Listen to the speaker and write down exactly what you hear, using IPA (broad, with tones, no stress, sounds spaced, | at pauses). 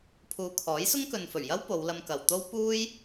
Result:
pʰ uː˨ kʰ ɔː˨˥ j s ʊ˥ ŋ k ɵ˨ n f ɵ˨˩ ɥ j ɐ˥ w p o˨˧ w l ɐ˧ m k ɐ˨ w t̪ o˥ w p uː˥ j